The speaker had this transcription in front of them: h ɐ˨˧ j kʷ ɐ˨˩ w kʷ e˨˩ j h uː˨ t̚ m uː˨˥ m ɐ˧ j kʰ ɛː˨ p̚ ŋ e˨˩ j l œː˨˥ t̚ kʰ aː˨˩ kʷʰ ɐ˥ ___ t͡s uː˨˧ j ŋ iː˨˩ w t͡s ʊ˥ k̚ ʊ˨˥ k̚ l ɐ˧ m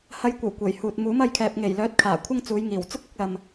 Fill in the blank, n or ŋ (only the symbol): ŋ